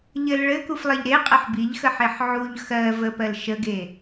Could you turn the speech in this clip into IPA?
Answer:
ʎɘl ɭɘkuflˠeʎ ɾeqʼɘħ biʎxəħeħ ʕuʎ xɜ vəpɜl ʃəɡe

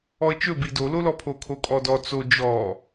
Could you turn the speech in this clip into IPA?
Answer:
ɔə̯t͡ʃɵbi dololɔ pʰokʰokʼɔdɔ t͡so d͡ʒɔ

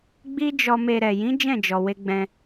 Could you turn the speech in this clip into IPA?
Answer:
ɡ͡bi˦ d͡ʒɔ˧me˧ ɾɛ˨ jĩ˨˦ d͡ʒɛ̃˦˨d͡ʒɔ˨ we˧ ɡ͡bɛ̃˧

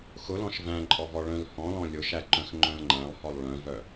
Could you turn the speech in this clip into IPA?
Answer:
xʊlɔ̃ʃ væ̃ǃʼɔvɔ ɭœ̃lhɔ̃lɔ̃ lʲʊʃæǃœ̃x ŋ͡ǃœ̃lŋ͡ǃæ̃lˠhɔlˠ ɭœ̃vœ

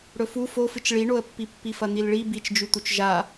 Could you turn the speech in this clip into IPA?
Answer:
ɽɵfu fofɨt͡ʃ ɭiɳoə̯pːi pːifɐn̪ilɭi bit͡ʃd͡ʒʉ t̪ut͡ʃʒa

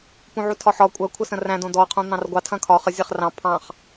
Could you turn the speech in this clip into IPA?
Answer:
pũʕutʰɒħɒ kʷʼɐ kʷʰəsə̃ræ̃ dõdɔ qʰũn̪ɑ̃rɡʷɑ tʰɐ̃kʰɒ χə zʲɐχrɑ̃ pʰɑ̃χ

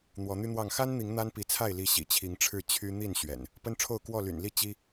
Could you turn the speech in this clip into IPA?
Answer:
n̪wɔ˨˦n̪y˦n̪wɑ˥˨ŋ xa˦nn̪i˨˦ŋ n̪a˦npi˨˦t͡sʰa˥˨ɪ̯li˨˦ ɕḭ˨˩t͡ɕʰi˨˦ŋʈ͡ʂʰɻ̩˥˨ t͡ɕʰy˦ n̪i˥˨n ɕɥɛ̰˨˩n | pə˦nʈ͡ʂʰo˥˨ʊ̯ kwɔ˥˨ly̰˨˩nli˥˨ t͡ɕi˦

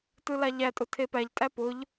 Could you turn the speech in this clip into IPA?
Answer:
tɯlaʎætʼʊ tʰepæʎtʼæ pʊʎ

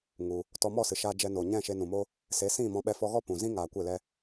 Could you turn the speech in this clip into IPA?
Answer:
ŋu˧ | tɔ˧mɔ˦˨sɨ˨ʃaː˧ d͡ʒɛ˧no˨ɲɛ̃˦˨ ʃe˧nũ˨mo˦ | se˨˦sĩ˦˨mɔ̃˧ ɓɛ˧fɔ˧ɣɔ˦ pũ˨zĩ˦ŋaː˨ kʷe˦˨lɛ˦

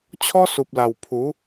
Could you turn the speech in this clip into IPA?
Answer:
t͡ɕʰɔ˦su˨p̚la˨˩wpʰu˨˦

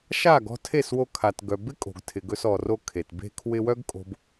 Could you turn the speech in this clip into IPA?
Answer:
ʃa˦˨ɡɔ̤˧tʰe˦˨swo˧ kʰa˨t ɡœ˨bɪ˦kʼo̤˨ɡ tʰɪ˨ɡɵ˧sɔ˨ro˧ kʰe˨tbe̤˦ kʰwɪ˧wœ˦ɡkʼo̤˧b

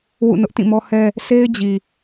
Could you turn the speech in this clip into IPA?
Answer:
wṵ˦˨nʊ˦ʔtĩ˦˨mɔ˦ hɛ˦ | sʰe˦ɪ̯d͡ʑi˨

